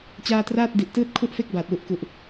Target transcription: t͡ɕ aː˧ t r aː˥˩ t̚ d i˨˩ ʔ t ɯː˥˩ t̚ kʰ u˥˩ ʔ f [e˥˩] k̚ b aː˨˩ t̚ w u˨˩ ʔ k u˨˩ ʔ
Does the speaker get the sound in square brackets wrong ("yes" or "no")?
no